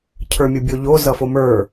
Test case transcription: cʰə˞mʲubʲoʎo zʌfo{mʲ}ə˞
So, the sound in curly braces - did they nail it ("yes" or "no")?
no